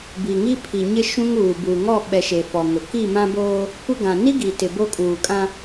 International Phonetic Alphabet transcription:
b i˨ ŋ i˦ pʰ i˨ ɲ ɪ˦ ʃ ũ˦ ŋ uː˨ b uː˨ ŋ ɔ˦˨ ɓ ɛ˨ ʃ e˨ f ɔ˨ ŋ ʊ˨ k i˦˨ m ã˦ b oː˦ | kʷ ɪ˦ ɡ ã˨ n i˦ ɡ i˨ t ɪ˨ b o˦ kʼ uː˨ kʼ ã˦

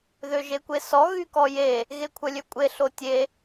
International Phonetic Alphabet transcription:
ð ø ʒ e kʷ e s ɔ ɣ y k ɔ j e | ɣ e kʷʰ œ lʲ ø kʷʼ e ɬ o tʲ e

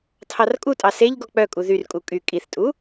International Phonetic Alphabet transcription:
tʰ ɑ r kʼ u tʼ ɑ s e ʎ ɡ ɔ k͡p œ kʼ u ð y r kʼ u kʼ y kʼ i θ tʼ u

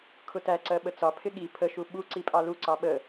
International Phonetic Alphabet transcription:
kʰ ʊ t æ ǀ ɜ ɓ ə t͡s ɒ pʰ ɪ ɠ i pʰ ə ʃ u ɓ u ǀ i pʼ ɑ l u ǀ ɑ ɓ ə

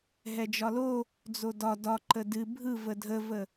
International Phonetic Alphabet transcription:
ɦ ɛ d͡ʒ ɒ l o | d͡z o d ɒ d ɒ ǃ ə d ɨ bʱ ɯ v ə dʱ ə v ə

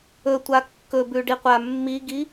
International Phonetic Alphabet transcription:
ɵ tʷ a kː ɵ b ʉ ɖ i qʷ a mː i ɡ i

